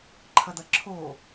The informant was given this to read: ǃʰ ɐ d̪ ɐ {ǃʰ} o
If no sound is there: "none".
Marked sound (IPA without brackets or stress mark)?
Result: ǁʰ